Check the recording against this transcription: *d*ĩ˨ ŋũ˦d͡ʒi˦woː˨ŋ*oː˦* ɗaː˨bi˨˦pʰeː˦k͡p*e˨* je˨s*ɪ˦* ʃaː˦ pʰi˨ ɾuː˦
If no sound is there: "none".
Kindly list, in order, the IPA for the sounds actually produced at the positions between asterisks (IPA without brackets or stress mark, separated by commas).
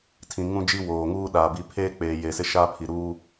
tʰ, uː˦, eː˨, ɪ˦